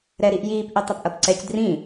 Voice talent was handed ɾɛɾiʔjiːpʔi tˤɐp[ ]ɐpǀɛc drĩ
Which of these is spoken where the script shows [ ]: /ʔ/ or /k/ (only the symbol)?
ʔ